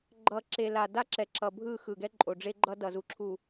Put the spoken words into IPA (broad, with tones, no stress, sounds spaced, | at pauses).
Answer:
ɡ͡ǃ ʌ˨ ǁ e˨ l a˨ d a˦ ǁ ɛ˨ ǁ ʌ˨ bʱ ɯ˦˨ x ɯ˨ ɡ ɛ˦ ǃʼ o˨ ɖ͡ʐ e˦ ɡ͡ǃ ʌ˦ d ʌ˨ z u˨ ǁʰ u˨